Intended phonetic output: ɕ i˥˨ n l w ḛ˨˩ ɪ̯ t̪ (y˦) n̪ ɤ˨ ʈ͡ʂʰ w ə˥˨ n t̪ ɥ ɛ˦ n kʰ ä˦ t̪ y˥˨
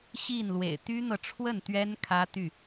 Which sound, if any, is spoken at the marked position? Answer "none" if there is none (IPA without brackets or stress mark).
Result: y˦